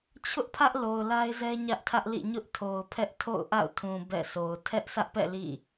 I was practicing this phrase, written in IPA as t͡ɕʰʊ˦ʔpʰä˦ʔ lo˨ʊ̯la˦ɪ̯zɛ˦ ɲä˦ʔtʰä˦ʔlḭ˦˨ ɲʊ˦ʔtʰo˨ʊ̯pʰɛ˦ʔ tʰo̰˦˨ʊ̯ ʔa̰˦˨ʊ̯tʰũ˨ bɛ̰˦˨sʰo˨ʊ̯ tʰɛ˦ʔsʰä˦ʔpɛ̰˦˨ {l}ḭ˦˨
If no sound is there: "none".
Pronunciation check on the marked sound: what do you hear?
l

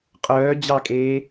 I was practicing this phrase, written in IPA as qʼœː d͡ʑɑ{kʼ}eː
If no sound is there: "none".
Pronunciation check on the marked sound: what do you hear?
kʼ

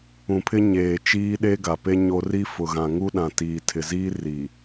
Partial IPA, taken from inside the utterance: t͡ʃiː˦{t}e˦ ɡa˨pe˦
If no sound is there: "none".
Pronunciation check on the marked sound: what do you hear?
ɗ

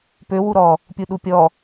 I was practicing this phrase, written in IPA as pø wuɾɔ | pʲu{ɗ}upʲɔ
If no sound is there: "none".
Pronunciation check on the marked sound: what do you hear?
ɗ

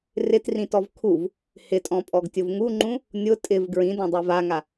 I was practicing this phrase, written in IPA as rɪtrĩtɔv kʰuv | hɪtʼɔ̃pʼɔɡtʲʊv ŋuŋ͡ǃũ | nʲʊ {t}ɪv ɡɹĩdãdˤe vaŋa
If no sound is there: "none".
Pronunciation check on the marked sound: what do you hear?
tʼ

